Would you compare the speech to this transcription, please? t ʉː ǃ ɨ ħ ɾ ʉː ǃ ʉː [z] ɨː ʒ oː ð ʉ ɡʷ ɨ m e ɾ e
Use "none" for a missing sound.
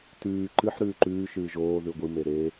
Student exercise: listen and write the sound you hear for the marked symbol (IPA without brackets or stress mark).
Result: ʃ